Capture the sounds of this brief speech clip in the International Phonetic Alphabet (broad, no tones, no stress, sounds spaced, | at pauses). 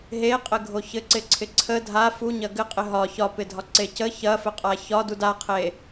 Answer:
ɦ e qʼ ɘ ɡʱ o ç ɘ ǀ ɪ ǀʰ ɪ ǀʰ ə dʱ a f u ɲ ɐ ɡ ɘ qʼ ɪ ɦ ɒ ç ɒ p ɪ dʱ ɒ ǀ e c ə ç ɐ f ɘ qʼ a ç ɒ d u d a qʰ e